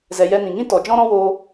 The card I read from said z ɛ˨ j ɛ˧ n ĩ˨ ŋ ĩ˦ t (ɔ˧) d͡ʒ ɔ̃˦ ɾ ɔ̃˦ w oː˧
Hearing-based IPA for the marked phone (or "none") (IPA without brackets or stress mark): ɔ˨